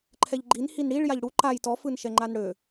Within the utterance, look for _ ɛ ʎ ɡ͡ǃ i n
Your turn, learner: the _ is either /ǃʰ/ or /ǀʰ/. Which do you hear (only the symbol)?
ǃʰ